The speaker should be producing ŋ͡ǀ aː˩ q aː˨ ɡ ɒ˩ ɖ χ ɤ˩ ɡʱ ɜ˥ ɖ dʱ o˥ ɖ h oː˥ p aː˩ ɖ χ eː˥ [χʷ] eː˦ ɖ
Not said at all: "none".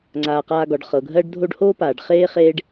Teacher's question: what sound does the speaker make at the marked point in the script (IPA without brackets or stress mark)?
χ